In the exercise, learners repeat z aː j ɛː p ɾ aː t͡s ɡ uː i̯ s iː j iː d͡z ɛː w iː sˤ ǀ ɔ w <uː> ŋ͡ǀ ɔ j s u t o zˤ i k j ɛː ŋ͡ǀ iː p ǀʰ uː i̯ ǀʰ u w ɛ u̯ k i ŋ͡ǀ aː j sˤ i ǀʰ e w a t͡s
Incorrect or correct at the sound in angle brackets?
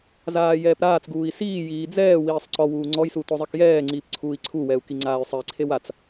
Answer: correct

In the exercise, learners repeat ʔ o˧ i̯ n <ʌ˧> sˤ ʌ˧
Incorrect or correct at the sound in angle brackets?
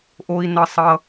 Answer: correct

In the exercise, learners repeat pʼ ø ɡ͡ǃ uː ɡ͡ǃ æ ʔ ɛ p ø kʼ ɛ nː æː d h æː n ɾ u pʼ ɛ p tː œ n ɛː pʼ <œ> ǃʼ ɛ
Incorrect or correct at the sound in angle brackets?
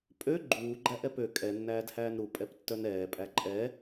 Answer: incorrect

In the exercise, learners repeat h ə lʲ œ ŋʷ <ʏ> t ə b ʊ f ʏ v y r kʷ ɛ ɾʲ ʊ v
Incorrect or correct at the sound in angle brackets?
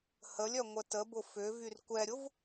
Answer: incorrect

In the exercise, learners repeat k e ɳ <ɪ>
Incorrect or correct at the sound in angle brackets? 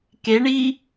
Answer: incorrect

